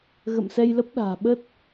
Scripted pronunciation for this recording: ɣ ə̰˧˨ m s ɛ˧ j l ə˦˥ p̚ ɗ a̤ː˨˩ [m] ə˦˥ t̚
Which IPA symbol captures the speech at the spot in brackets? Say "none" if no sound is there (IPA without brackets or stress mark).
ɓ